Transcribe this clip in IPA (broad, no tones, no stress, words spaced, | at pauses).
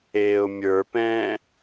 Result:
eːʊ̯mʲə˞pɛ̃ː